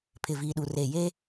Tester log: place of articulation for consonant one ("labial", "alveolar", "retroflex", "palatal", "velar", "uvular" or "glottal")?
labial